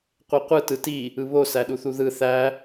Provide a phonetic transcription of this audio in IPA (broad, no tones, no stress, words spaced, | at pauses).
qʷeqʷɯ tɯti | ɯβo sæɗuθuðɯ θæ